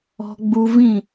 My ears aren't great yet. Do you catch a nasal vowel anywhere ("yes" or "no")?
yes